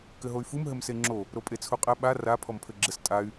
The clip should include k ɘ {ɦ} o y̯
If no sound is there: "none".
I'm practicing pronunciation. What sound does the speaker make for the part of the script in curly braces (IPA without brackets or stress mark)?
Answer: ɦ